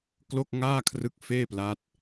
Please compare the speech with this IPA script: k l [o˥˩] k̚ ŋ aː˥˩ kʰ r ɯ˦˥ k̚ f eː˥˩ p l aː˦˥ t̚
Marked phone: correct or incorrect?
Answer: correct